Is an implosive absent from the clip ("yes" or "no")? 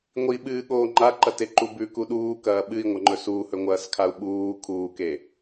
no